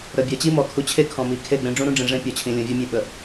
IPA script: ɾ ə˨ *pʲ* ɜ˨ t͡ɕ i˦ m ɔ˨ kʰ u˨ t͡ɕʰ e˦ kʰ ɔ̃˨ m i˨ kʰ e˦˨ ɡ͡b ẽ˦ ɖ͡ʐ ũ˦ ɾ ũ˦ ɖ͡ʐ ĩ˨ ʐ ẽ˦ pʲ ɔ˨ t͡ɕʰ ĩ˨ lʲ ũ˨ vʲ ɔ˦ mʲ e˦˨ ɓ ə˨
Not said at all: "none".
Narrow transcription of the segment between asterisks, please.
bʲ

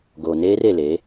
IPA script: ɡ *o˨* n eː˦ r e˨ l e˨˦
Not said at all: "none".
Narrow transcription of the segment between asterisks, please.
o˨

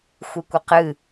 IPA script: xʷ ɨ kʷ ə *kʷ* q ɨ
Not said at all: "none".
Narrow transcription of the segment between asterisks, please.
none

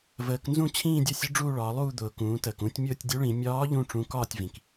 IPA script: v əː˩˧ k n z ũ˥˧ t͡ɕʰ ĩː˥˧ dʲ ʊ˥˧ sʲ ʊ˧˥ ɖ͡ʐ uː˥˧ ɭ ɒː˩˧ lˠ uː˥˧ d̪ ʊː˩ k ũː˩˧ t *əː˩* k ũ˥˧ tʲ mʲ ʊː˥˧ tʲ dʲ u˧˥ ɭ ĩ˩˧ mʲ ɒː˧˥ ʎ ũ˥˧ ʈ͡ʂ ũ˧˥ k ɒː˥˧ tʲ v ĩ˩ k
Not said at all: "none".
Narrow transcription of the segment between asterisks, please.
əː˩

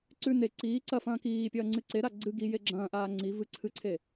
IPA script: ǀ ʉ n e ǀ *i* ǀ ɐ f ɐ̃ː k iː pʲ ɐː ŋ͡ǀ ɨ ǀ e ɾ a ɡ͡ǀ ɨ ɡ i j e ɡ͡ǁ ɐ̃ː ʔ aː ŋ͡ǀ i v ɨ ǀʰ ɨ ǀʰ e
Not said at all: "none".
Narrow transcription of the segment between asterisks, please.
iː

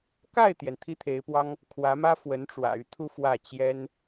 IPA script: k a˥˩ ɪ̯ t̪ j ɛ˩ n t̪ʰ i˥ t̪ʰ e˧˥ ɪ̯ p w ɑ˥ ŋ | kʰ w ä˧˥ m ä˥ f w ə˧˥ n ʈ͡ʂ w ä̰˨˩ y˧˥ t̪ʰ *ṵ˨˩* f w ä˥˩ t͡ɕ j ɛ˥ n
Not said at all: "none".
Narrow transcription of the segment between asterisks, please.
u˥˧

